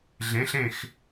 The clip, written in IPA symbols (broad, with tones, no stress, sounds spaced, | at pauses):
ɮ ẽ˩˧ ɬ ẽ˧˩ x